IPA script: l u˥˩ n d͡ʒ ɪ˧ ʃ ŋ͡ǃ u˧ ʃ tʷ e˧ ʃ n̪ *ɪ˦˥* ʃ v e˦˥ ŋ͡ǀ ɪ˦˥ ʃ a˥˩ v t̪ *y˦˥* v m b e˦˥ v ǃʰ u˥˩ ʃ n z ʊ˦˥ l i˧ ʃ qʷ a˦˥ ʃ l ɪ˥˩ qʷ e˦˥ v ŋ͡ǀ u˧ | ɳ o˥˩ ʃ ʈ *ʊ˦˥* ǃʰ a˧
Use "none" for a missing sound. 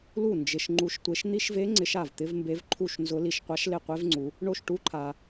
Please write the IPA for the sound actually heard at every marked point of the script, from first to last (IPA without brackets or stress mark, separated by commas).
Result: i˦˥, ɪ˦˥, u˦˥